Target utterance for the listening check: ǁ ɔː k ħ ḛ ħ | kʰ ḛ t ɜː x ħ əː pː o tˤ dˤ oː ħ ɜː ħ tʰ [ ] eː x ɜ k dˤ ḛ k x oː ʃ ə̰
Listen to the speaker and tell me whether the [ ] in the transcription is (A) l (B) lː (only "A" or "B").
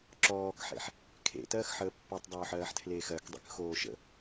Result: A